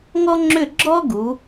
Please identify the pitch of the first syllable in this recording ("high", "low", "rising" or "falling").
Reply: high